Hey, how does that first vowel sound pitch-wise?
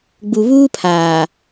low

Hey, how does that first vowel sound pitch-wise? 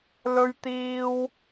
high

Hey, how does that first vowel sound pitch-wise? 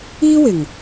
high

